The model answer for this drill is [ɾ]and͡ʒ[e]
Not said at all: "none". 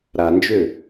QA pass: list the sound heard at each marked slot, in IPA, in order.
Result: ɾ, ø

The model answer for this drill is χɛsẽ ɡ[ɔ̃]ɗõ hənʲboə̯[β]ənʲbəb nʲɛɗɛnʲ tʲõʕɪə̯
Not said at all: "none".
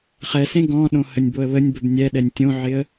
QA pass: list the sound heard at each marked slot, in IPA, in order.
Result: ɔ̃, β

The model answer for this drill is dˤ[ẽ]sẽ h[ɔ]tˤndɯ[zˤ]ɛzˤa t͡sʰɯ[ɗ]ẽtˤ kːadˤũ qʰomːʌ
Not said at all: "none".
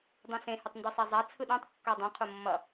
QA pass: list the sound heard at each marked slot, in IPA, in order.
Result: ẽ, ʌ, sˤ, ɗ

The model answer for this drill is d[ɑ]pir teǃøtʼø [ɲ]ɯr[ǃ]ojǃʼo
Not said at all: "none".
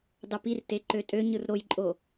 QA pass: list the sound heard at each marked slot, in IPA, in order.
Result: ɑ, ɲ, ɾ

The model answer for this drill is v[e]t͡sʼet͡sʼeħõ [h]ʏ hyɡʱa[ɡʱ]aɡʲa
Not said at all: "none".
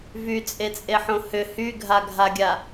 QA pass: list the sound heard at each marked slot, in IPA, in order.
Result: y, h, ɡʱ

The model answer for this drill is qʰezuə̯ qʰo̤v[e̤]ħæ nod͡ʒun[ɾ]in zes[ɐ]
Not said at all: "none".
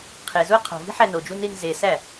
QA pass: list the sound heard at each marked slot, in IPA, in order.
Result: i̤, ɾ, æ

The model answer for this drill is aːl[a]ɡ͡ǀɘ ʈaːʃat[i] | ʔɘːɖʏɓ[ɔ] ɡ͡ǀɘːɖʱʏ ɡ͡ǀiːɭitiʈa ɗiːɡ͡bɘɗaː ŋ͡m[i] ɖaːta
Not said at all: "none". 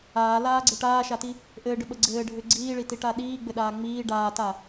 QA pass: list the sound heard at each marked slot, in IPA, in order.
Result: aː, i, ə, iː

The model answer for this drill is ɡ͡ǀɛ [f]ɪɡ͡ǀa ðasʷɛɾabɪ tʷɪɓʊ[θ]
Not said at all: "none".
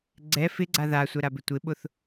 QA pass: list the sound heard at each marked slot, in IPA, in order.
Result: f, θ

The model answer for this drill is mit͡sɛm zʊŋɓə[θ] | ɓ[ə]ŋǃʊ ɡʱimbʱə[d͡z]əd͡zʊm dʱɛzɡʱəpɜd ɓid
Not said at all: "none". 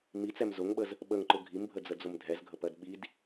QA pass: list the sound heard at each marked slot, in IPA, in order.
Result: z, ə, d͡z

